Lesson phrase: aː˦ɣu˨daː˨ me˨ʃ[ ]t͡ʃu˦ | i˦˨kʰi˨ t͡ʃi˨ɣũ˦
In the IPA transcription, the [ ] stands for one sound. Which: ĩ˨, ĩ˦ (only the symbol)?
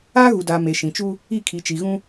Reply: ĩ˨